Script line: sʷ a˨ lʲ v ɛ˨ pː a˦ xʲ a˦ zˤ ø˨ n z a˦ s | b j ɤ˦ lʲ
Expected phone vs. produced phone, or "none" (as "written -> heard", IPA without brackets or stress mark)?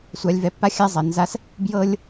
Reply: ø˨ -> ɛ˨